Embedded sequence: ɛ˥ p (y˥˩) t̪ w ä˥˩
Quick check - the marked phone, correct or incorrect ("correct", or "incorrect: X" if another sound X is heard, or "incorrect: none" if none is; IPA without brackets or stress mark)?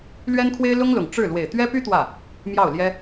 incorrect: y˥